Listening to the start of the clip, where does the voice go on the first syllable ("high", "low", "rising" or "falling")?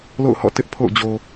falling